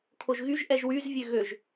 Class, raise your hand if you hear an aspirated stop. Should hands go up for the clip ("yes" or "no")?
yes